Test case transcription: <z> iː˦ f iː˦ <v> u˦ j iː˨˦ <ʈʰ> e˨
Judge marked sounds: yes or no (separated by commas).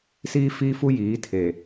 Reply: no, no, no